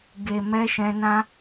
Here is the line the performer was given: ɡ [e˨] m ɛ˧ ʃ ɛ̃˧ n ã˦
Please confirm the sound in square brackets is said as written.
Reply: yes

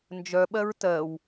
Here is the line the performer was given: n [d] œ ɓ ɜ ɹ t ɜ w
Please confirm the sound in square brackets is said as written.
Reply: no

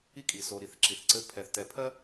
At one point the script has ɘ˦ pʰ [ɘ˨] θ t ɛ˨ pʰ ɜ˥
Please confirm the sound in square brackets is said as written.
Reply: no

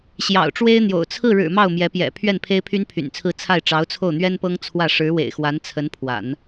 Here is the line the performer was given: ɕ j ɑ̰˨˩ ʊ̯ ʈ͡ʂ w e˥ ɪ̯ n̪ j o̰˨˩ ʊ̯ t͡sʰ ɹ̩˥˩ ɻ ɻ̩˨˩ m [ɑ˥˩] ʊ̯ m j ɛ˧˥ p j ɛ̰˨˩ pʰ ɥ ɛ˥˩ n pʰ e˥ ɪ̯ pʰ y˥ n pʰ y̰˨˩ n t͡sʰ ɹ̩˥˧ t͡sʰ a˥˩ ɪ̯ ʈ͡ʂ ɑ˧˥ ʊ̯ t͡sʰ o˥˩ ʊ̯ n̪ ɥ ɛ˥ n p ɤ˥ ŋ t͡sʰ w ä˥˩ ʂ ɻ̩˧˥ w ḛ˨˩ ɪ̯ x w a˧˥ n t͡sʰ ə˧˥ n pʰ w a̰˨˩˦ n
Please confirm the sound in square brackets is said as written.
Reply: yes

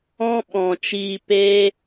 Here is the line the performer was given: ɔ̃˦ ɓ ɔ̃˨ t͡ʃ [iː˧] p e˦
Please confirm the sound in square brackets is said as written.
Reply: yes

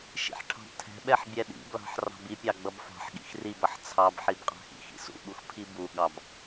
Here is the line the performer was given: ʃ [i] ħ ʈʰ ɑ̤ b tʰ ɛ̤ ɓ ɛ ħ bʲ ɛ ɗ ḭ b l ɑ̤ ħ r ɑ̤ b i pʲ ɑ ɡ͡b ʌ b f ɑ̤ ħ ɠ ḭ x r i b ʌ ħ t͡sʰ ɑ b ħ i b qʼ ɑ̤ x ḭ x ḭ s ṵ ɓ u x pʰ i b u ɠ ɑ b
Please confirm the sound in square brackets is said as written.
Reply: no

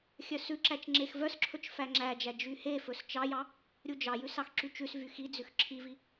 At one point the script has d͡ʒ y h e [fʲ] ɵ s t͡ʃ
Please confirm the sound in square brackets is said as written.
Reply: no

